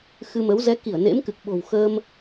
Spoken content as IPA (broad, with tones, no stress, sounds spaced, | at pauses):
x ɨ˧ m ə˨˦ w z ɛ˨˦ k i˧˩ ə̯ n ḛ˧˥ m k ɨ˨˩ k̚ ɓ o̤˨˩ w x əː˧ m